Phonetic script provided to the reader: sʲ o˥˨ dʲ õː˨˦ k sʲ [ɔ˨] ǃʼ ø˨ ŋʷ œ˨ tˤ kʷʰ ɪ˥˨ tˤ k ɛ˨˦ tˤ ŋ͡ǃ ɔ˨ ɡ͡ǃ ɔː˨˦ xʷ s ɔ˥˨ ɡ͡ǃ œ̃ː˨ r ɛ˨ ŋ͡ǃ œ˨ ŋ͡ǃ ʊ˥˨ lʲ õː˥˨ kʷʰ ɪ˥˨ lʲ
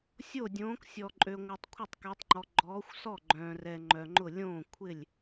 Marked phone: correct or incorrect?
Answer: correct